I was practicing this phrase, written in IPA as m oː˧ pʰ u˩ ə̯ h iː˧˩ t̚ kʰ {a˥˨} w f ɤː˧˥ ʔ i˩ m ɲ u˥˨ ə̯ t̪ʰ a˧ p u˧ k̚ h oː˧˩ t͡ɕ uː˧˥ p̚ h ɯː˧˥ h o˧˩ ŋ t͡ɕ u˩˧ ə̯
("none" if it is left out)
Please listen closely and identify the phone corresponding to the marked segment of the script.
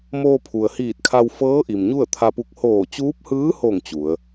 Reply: a˧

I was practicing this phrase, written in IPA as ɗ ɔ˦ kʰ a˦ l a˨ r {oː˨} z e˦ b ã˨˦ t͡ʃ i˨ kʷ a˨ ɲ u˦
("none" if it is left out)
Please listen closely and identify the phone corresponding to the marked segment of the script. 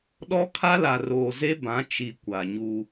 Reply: oː˨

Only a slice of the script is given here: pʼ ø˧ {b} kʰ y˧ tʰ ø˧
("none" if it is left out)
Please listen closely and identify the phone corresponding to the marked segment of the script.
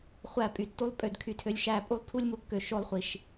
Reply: d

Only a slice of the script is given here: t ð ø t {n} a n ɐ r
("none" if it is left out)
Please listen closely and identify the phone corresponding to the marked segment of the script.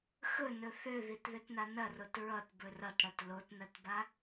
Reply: n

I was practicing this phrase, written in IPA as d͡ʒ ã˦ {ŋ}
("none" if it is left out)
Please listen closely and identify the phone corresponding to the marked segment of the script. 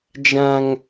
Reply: ŋ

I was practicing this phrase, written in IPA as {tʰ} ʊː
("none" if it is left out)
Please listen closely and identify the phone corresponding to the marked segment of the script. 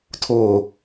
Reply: tʰ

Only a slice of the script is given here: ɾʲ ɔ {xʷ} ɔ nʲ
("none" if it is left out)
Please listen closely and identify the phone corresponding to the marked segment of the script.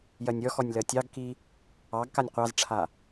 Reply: x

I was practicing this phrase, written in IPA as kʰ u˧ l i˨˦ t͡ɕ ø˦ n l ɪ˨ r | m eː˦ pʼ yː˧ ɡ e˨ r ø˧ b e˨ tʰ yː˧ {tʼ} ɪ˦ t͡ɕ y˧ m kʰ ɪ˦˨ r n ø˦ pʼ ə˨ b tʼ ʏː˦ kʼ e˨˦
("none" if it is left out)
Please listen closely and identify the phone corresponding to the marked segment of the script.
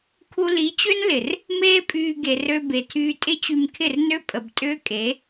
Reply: tʼ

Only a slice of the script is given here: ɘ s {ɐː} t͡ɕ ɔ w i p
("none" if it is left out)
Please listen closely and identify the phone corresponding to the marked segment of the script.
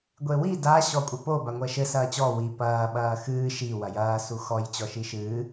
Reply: ɐː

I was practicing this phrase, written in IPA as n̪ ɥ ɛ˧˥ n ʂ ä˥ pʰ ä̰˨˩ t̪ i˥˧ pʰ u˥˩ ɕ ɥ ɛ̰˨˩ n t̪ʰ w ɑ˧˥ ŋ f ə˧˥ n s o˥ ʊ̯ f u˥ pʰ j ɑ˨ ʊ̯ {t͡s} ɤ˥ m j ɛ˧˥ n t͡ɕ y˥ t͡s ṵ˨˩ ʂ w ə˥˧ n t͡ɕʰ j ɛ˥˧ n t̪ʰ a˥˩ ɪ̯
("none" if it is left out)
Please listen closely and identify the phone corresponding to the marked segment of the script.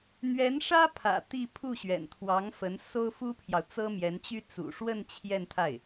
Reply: t͡s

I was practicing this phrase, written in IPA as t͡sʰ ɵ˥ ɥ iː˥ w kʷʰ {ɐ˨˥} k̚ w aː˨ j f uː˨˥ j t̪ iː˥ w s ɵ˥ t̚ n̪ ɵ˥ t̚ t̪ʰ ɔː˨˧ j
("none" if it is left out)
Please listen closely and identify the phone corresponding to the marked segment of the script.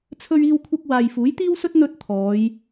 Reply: ɐ˥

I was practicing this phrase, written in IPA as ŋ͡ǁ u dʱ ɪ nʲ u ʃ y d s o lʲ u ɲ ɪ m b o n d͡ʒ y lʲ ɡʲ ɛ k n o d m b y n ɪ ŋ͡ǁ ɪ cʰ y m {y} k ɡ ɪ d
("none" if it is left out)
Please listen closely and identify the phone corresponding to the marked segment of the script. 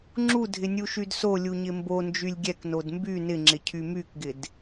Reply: y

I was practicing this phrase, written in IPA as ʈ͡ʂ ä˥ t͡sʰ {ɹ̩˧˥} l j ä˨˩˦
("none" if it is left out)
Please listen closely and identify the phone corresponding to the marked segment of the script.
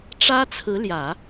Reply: ɹ̩˧˥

